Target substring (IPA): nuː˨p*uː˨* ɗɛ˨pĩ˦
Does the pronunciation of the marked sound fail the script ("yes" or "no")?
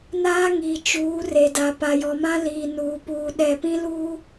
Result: no